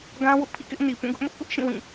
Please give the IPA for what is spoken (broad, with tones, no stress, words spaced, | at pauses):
ɡã˦wʊ˦ʔ pʰḭ˦˨kɪ˦ʔni˨ pũ˦˨ɡʊ˦ʔmʊ˦ʔ pʊ˦ʔʃĩ˦˨ wĩ˦˨